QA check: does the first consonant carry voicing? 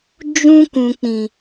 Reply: yes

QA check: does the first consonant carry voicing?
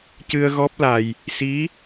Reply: no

